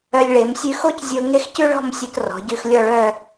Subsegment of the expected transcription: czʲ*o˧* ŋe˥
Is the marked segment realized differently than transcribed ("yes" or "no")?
no